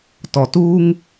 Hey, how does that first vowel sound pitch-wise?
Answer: low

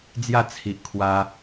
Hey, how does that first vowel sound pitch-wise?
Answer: falling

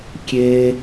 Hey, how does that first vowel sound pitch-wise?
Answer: high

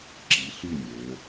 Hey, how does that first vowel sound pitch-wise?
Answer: rising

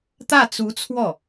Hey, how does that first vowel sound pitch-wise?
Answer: falling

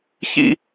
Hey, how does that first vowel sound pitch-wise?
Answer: high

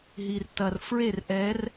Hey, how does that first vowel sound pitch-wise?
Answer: low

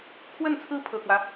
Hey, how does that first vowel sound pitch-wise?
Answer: falling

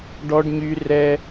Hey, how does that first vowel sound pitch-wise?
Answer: high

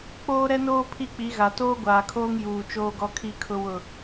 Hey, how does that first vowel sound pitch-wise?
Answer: high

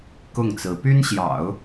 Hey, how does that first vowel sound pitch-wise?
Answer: falling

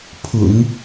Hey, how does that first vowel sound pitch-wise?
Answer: low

